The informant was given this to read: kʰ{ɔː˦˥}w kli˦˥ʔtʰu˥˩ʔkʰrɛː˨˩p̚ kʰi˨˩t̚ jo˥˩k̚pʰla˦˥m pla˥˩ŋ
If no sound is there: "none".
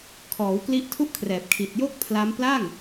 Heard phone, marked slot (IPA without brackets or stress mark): ɔː˩˦